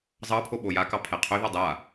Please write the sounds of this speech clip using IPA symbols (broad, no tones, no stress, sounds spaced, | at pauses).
zˤ ɑ pʰ o ɓ o j a k ɑ pʰ ɛ qʰ ø ð ɑ dˤ a